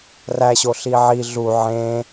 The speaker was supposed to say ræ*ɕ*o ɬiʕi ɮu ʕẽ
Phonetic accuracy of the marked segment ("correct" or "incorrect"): correct